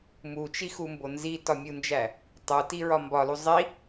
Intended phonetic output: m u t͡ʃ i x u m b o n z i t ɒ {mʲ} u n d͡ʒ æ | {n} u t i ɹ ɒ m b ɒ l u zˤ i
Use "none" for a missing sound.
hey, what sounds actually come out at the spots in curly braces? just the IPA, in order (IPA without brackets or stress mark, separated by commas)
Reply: mʲ, tˤ